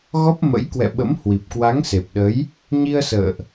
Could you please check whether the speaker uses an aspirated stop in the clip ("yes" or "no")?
no